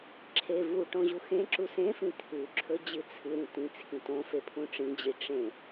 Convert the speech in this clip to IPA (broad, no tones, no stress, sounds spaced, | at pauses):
ǁʰ e v u ʈ õ ʑ u x ẽ ǁ u s ẽ f ĩ t̪ʰ ʉ ǁʰ ɵ d͡ʑ ɨ t͡sʰ ɨ ɾ ĩ t ĩ t͡sʰ ĩ t õ f e pʰ ũ ʈ͡ʂ ĩ d͡ʑ i ʈ͡ʂ ẽ